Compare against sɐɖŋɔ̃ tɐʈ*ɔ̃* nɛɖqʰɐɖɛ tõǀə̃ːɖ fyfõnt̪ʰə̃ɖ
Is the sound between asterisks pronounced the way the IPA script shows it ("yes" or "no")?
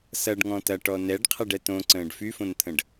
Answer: no